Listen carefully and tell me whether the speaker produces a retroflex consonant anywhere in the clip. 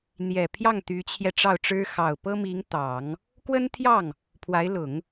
yes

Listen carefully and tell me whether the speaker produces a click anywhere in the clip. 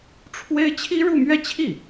no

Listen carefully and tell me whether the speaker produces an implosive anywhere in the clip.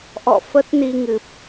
no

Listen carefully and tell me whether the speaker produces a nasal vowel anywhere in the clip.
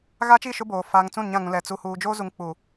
yes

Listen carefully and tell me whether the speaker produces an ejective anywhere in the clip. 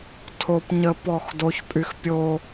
yes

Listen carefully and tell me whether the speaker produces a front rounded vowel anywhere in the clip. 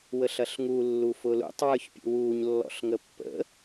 no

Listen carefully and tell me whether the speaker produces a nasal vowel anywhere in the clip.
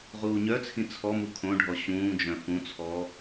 yes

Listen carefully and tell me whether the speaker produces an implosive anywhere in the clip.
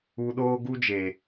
yes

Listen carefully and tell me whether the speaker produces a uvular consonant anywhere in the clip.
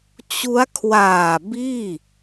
no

